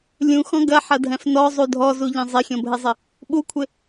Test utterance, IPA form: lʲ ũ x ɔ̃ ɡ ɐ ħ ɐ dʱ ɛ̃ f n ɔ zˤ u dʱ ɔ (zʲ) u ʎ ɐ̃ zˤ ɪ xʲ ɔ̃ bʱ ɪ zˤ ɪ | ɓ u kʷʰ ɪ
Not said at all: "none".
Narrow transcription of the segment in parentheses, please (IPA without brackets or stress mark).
z